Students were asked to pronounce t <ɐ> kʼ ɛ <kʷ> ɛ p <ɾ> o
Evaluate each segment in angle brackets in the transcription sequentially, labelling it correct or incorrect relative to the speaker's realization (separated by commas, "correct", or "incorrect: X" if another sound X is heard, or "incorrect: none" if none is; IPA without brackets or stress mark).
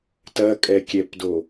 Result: correct, incorrect: kʲ, incorrect: d